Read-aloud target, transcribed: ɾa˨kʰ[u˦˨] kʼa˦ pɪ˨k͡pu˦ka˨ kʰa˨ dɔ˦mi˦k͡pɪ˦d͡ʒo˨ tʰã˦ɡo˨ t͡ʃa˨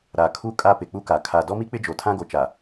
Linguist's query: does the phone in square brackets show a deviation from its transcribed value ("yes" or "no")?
yes